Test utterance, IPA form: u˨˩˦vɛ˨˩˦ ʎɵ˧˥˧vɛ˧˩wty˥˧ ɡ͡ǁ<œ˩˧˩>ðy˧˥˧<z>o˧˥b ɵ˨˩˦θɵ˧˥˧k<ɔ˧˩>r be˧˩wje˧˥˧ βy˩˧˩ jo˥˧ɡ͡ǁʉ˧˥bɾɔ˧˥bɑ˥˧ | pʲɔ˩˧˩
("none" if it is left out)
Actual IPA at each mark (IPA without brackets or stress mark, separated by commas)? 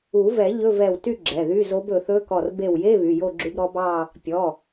ɛ˩˧˩, z, ɔ˧˩